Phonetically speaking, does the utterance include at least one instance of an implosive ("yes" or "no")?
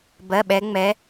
yes